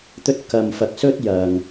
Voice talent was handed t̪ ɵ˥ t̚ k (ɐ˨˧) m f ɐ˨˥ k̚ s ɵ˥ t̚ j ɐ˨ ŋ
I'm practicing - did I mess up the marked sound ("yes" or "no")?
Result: yes